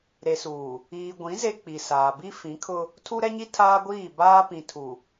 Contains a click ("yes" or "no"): no